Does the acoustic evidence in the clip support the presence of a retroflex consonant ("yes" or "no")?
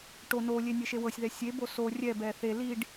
yes